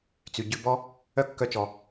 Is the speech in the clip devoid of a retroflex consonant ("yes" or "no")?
yes